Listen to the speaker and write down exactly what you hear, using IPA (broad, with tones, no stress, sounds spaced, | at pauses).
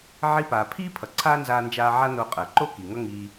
ʕ i˧ p aː˩ pʰ iː˥ pʰ ʌ˩ ǀʰ aː˥ n z aː˧ n d͡ʒ aː˧ ʕ a˥ n o˧ qʼ əː˩ ǃ o˥ k i˩ ŋ ʌ˥ ŋ iː˧